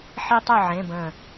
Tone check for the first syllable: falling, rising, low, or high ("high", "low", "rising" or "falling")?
high